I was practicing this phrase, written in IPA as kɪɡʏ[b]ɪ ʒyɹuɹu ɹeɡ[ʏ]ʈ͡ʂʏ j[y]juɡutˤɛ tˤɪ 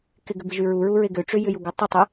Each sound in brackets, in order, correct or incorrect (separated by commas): correct, correct, incorrect